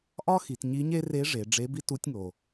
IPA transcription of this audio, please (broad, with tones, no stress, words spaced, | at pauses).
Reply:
ʔɒ˥xi˩˧t ɲi˧˥ɲe˥ re˧˥ʐe˩˧ ɖ͡ʐe˧˥bi˥tu˧˥tʲŋo˩